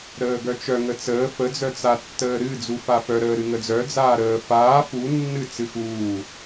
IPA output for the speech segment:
ɾəːɡœt͡ʃœ ŋət͡səː fə d͡zœt͡satːəːɾɨ d͡zufafœ ɾəːɾɨŋəd͡zœ d͡zaːɾəː faː fu nːɨ t͡sɨxuː

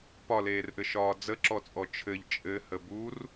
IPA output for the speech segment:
pɒleːrʔɘʃɒː d͡zəǁɔt͡sʼɔ t͡ʃʰɘʎ t͡ʃʼɘhə bur

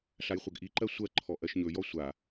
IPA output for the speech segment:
ɬajχʷɘɡʔiǃɜ sʷɜǃʰɔ ʔɜʃɲɵjɔ sʷa

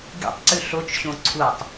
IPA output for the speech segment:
ɡḛtˤǀʉ ɬot͡ʃɕõ ǀʰutˤ

